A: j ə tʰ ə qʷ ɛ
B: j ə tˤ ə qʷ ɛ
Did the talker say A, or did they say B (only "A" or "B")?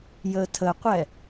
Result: A